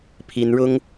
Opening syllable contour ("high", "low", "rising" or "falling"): high